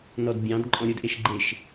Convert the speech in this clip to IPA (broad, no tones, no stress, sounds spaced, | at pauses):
n ɔ d bʲ ɑ̃ d ǃʼ ɔ̃ ɾʲ o d ʔ e ʃ ɡ͡ǃ e ʃ